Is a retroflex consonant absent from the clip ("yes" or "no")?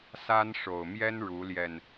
no